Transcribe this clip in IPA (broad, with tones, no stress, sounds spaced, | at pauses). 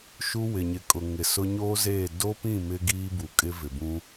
ʃ u˦ w ɪ˨ ɲ ɪ˨ kʼ ʊ˨ ŋ ɪ˨ s ʊ˦ ɲ oː˦ z eː˦˨ d o˦ p ĩ˦˨ m ɪ˦ ɡ iː˦ b u˨ kʼ ɪ˦ v ɪ˨ b ũ˦